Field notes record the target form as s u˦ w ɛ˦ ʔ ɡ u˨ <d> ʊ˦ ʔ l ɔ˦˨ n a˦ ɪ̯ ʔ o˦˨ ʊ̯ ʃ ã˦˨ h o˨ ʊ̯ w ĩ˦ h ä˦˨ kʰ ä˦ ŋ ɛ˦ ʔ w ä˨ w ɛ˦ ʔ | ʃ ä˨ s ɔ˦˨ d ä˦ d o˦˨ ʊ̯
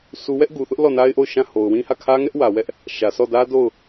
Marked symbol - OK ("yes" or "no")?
no